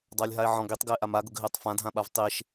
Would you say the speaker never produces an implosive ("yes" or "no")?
no